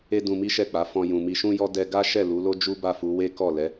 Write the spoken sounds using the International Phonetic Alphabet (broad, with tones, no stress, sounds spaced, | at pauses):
e˦ d ũ˧ m i˦ ʃ ɛ˦˨ k͡p a˨˦ f ɔ̃˧ j ũ˨ m i˧ ʃ ũ˦ j ɔ˦ d ɛ˧ ɡ a˦ ʃ ɛ˦˨ l u˨˦ l o˦ d͡ʒ u˦ b a˦˨ f u˨˦ w e˦ k ɔ˦˨ l ɛ˨˦